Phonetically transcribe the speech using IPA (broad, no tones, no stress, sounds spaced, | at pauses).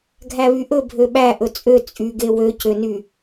ɡʱ æ β y ʔ ɵ bʱ ø ɓ æ ʔ ɵ t͡sʼ ø t͡sʼ y ɡ e w ø c ø n y